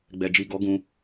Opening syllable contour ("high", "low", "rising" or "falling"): low